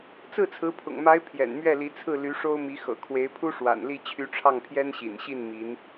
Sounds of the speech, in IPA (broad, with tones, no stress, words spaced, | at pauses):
t͡sɹ̩˥˩t͡sʰɹ̩˧˥pʰʊ̰˨˩ŋma˧˥ɪ̯ pʰjɛ̰˨˩nmɥɛ˥˩li˧˥t͡sʰɹ̩˥˩ ly˧˥ʂo˥ʊ̯mi˧˥ xɤ̰˨˩kʰwe˧˥ɪ̯pʰu˥ʂwa̰˨˩n li˥˩t͡ɕʰy˧˥ʈ͡ʂʰɑ˥˩ŋpʰjɛ˥n ɕḭ˨˩nɕi˥˩n mi˧˥n